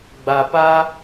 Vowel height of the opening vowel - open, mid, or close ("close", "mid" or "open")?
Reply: open